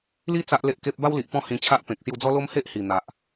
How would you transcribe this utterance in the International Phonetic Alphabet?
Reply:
li˦ t͡sa˦ʔle˦ʔke˦p̚ ba˦wli˨ʔ pɔ̃˦ hĩ˧t͡ɕʰa˦ʔpẽ˨k̚ sju˧d͡zɔ˦lo˦m he˦ʔhi˨˩n̪a˨ʔ

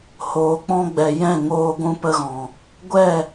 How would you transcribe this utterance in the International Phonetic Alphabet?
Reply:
hoː˨k͡pɔ̃˧ɡ͡bɛ˨ jɛ̃˦˨ŋoː˧ ɡʷũ˧pə˧ɣɔ̃˨ | ɡʷɛ˦˨

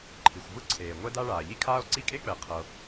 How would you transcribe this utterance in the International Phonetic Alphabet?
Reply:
ǃʰi˩xʷvɯ˥ǀʰeː˩ ŋʷɛ˥da˥ɭaː˩ ʎi˥kʰaː˥o̯ǀi˥ kʼe˥k͡pɛ˩qʰɤ˩

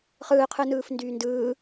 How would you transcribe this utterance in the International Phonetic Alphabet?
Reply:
χɯːqʰɯnɯːfndyː ndɯː

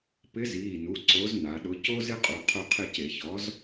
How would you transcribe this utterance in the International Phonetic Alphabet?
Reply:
pɪ˨˥ziː˩˧˩nu˩˧˩ ǀo˨˥zna˩˧ɗʊ˨˥ co˦zɪ˦qʼu˩˧˩ qʰʊ˦˨ qʰɪ˦˨ce˧˩˧çɔ˨˥z

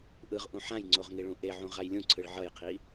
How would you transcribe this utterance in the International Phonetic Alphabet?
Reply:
ʔɯʁʔũ ħãjŋ͡ǀoʁ ŋiɭũʔeʕũ ʁajlʲũǀʰɯɭ ʕʌjqʰi

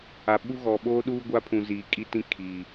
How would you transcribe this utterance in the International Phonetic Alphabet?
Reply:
a˨ɓu˦ ɣɔ˨ɓoː˦ɗuː˦ ɡʷa˦pʰũ˨ziː˨ kʼi˦tĩ˦˨ kʰiː˨

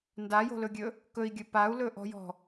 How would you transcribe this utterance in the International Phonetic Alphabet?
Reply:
ndajo̤lɵɡʲɵ | kɵi̯ɡʲɵ pau̯lɵʔɔ̤jɔ̤

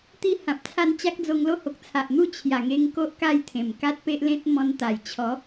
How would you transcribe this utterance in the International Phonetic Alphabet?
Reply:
t̪i˥˧hã˨p̚t͡sʰa˥˧n t͡ɕa˦k̚d͡zo˧ŋlo˥˧ ho˨k̚t͡sʰa˨ʔn̪u˥˧ t͡ɕʰja˨˩ŋe˧ŋ ko˦ʔka˥˧jt̪ʰẽ˨˩m ka˦t̚pe˦ʔlẽ˦t̚ mɔ̃˧nt̪a˨˩j t͡ɕʰɔ˨˦

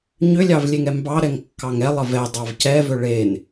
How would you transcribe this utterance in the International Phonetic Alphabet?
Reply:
ɲʏlʲɑvlʲeŋɛ mbɑɾɛŋkːɑŋ ɛlˠə vɛdˤɑv cɛvʏ ɭen

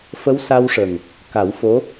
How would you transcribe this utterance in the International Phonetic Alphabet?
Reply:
fə˧˥wsa˧wʂə˨˩ŋ | ka˨˩˦wfo˧˥

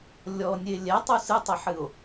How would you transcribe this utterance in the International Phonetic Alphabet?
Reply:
lʲɔnʲe lʲɛtˤu sɨtˤɘħɨo̯

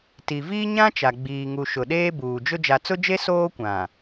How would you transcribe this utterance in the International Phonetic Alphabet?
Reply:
ti˨viː˦ ɲã˦ t͡ʃa˨ɡ͡biː˨ŋu˨ ʃʊ˨ɗeː˦ buː˨d͡ʒʊ˦ d͡ʒa˨t͡sʊ˦d͡ʒe˦ soː˦kʷã˨

